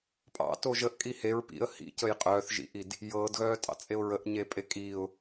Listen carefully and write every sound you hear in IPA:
pʼ ɑ̰ t o ʒ ə ʔ kʼ i h e ɹ p ḭ ə̯ h ḭ c ə j qʼ œː θ ʒ ḭ ʔ i d | j ɤː d ɣ œː tʼ ɑ̰ t͡sʼ e ʊ̯ ɹ ə ʔ ɲ e pʼ e kʼ iː ʊ̯

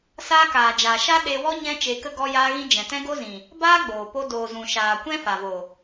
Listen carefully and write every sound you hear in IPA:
s aː˧ k aː˨ d͡ʒ aː˨ ʃ a˦ ɗ e˧ w ɔ˦ ɲ ɛ̃˦ t͡ʃ e˧ k ə˦ ɡ ɔ˧ j aː˧ ɣ ĩ˧ d͡ʒ ɛ̃˨ t ɛ̃˦ ɡ o˦ z ĩ˨ | b aː˦ ɡ͡b oː˨ p o˧ d oː˨ z ũ˨ ʃ aː˨ kʷ ɛ̃˦ f a˨ v o˨

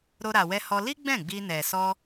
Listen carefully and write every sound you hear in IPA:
ɾ o˧ ɾ a˨ w ɛ˧ h ɔ˧ l i˦ ɡ͡b ɛ̃˦˨ ɡ͡b i˧ n ɛ˨ s ɔ˧

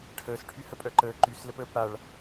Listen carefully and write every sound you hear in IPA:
ʈʰ əː s ʈʰ y h ə pʼ œ ǃ əː ǃ y s l ə p əː p ɽ a ɭ

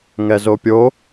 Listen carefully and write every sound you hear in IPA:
ŋ ɛ z o pʲ o

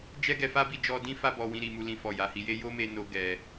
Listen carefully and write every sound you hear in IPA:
d͡ʒ ɛ˦ ɡ ɛ˧ f a˦ b i˦˨ d͡ʒ ɔ˧ d ĩ˦ f a˧ b ɔ˨ w ĩ˨ ɾ i˨ m u˨ l ĩ˨ f ɔ˨ j a˨ h i˧ j e˦ j o˦ m e˧ n o˧ ɡ ɛ˧

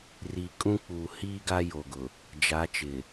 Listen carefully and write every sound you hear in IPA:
r i˨ kʼ ũ˦ k͡p uː˨ h iː˦ ɡ a˦ j o˨ ɡ ʊ˨ | d͡ʒ a˨˦ t͡ʃ ɪ˨

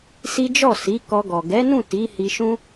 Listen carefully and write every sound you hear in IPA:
s i˦ d͡ʒ ɔ˦˨ s i˨˦ k ɔ˧ ɡ ɔ˨ ɡ ɛ˨˦ n ũ˦˨ t i˨˦ h i˧ ʃ ũ˦

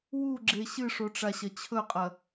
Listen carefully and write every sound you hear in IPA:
w u ɡ͡ǁ e ɕ ɨ ʂ o ʈ͡ʂ a ɕ ɐ t͡ɕʰ ɵ qʼ ɐ

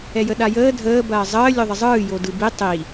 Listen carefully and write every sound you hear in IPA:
ɛ j ə ɗ a j əː dʱ əː b ɐː zˤ əː lʲ o ðˤ ə zˤ ɯː j o d ɯ b i tˤ i

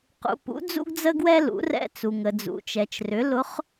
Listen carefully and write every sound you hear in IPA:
q ṵ˩ p ṵ˩˧ d͡z ṵ˧ ɡ d͡z ə˧ ɡ w ɛ˧ l ṵ˩˧ r ɛ̰˧ t͡s u˩ ŋ ə˩ d͡z ṵ˩ t͡ʃ ɛ˩ t͡ʃ r ʏ˩˧ l ʊ˧˥ χ

